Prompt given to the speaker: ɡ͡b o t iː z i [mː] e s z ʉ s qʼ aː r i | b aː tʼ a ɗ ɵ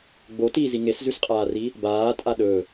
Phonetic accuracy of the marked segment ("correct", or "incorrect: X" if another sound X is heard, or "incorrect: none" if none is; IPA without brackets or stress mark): incorrect: ŋ